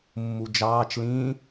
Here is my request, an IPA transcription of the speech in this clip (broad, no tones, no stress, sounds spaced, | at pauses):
mː u d͡ʒ ɑː t͡ʃ l ĩː